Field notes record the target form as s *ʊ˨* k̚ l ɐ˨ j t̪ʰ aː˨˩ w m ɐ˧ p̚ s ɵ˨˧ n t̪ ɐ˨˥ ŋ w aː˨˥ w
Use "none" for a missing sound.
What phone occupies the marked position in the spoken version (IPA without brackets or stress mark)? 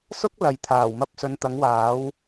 ʊ˥